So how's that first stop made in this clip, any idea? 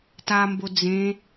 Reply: plain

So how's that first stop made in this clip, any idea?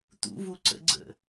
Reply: plain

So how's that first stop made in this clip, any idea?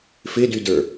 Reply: plain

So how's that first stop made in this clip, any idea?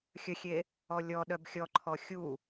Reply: implosive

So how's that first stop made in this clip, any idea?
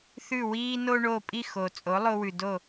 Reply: ejective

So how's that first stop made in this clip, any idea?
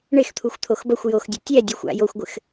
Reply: aspirated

